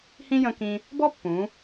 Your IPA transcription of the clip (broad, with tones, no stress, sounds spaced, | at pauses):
h ĩ˥ j ə̃˧ k ĩ˧ | b ɔ˥ pː ũ˩˧